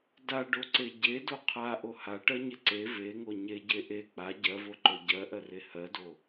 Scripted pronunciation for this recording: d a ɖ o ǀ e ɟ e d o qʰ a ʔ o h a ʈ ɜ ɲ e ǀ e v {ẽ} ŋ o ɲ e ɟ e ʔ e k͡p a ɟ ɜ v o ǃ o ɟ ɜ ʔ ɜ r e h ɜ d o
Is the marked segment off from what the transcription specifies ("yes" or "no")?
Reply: yes